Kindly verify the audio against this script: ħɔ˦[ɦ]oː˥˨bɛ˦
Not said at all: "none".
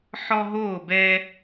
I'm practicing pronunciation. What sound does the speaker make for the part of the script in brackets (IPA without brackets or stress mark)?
ɦ